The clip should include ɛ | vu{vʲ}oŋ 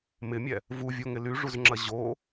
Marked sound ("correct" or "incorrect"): correct